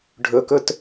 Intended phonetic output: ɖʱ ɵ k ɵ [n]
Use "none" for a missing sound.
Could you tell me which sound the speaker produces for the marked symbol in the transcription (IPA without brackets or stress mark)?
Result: t